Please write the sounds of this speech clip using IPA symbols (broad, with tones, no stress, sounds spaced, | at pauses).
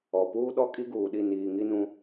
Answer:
ɔ˨ p uː˦ ɗ ɔ˦ kʼ i˦ ɡ uː˨ ɗ i˦˨ n iː˨ ŋ i˦ n ũ˦